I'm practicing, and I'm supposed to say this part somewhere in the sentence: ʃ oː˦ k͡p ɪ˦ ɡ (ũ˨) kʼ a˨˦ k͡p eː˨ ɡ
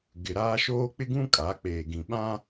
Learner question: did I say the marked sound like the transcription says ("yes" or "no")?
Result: no